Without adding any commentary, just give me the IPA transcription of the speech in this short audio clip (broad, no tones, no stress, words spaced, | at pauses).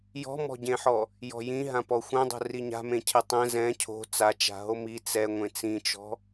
jɔ̤mɔ̤ɟẽħɔ | jɔ̤jĩ ɦãpɔxʷɛ̃dˤo̤ riɲa̤mẽ cʰetˤɛ̃ zɛ̃ cʰo̤ t͡sat͡ʃa̤ ɦomi t͡sɛ ŋʷẽt͡sĩt͡ʃɔ̤